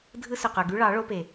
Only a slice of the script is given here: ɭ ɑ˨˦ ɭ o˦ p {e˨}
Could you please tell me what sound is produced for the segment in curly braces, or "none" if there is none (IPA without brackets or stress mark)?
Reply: e˨